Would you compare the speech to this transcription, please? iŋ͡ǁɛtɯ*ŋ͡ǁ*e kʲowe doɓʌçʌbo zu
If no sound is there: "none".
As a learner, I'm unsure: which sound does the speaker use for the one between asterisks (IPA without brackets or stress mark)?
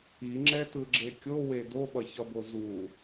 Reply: ɡ͡ǁ